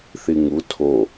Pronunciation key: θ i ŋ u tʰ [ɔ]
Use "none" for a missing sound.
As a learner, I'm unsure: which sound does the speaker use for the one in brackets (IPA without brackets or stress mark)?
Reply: o